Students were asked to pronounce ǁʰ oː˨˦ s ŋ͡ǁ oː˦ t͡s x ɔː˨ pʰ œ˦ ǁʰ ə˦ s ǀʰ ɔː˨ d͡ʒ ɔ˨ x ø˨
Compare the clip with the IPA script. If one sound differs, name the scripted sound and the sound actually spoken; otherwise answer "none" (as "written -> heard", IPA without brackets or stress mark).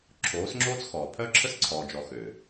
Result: none